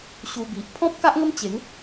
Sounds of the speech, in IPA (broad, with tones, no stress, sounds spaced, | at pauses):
ɕ u˧ b i˨ ʔ pʰ ɔ̃˦ p̚ k a˦ ʔ ŋ ə˦ m t͡ɕ e˨˦ ŋ